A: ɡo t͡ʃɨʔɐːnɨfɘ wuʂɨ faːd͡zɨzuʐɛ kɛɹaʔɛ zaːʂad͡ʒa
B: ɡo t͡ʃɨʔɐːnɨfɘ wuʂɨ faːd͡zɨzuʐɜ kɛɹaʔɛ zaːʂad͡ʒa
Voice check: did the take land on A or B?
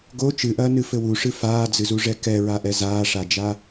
A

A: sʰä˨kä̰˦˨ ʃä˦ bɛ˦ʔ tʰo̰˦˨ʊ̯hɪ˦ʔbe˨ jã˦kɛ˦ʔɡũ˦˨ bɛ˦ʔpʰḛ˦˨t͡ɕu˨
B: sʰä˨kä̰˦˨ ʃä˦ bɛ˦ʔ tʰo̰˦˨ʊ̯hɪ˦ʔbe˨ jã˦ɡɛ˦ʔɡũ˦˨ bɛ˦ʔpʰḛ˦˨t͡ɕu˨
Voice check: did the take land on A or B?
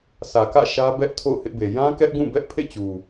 A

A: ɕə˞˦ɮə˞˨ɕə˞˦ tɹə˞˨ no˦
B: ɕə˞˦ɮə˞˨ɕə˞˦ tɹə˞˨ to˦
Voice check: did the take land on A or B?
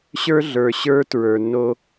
A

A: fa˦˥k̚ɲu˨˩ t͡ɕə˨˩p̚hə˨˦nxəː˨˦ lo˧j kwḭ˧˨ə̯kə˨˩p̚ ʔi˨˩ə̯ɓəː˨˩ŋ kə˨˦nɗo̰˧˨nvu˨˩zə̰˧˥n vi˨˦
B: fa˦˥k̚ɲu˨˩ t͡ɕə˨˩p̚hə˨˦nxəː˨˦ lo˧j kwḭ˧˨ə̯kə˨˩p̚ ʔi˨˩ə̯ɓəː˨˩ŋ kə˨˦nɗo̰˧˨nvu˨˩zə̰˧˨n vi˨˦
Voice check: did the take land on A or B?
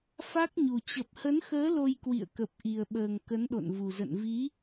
B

